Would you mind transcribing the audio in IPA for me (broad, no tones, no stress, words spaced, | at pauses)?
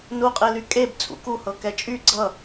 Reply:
nuqʼely kʼeb t͡sʼṵkuhɤ kɛt͡ʃʼy ɡ͡ǀʌ